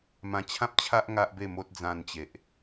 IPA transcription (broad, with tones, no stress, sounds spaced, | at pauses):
m ã˧ t͡ɕʰ ã˦ p̚ t͡ɕʰ a˦ ʔ ŋ a˦ ʔ b e˥˧ m o˦ t̚ d͡z ã˧ n t͡ɕ e˨ ʔ